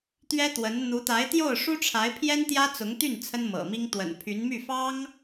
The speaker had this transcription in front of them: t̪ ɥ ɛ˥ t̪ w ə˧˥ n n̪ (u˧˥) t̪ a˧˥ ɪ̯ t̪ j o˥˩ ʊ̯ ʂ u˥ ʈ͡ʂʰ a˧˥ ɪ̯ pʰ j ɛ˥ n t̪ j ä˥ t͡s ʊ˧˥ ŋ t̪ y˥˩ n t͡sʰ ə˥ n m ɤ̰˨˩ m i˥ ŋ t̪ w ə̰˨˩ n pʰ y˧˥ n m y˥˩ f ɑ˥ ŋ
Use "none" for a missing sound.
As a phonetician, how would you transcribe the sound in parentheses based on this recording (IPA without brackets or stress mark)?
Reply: u˧˥